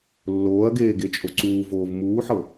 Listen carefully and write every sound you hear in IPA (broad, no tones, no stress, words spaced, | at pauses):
lːoːɐ̯ɡeː ɡet͡ʃʼoǀuːvoːv muːħɤ